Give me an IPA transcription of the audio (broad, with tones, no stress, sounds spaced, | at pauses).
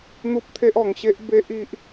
n̪ u˦ p̚ t̪ʰ e˦ ʔ ɔ˨˩ ŋ ɕ e˦ ʔ b e˦ ʔ i˦ ʔ